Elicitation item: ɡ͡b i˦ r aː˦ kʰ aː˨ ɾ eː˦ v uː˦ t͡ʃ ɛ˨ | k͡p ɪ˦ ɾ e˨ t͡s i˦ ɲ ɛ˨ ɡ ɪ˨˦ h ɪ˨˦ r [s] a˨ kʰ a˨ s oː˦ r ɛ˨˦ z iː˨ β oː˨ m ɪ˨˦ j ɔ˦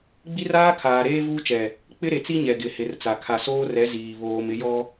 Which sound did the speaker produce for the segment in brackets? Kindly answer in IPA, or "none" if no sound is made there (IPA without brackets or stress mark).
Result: t͡s